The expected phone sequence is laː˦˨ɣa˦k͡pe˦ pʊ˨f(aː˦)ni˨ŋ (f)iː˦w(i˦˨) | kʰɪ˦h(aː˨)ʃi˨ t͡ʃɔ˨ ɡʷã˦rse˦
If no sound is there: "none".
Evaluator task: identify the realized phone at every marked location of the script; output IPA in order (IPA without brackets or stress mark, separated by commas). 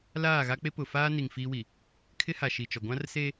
aː˦, f, i˨, a˨